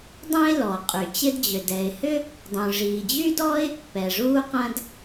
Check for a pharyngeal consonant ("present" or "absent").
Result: absent